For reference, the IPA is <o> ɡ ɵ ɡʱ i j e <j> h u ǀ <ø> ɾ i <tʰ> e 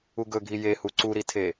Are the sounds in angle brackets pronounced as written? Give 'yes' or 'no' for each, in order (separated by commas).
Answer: no, no, no, yes